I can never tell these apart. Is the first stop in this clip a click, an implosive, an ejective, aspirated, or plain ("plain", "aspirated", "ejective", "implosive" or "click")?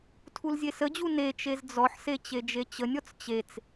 aspirated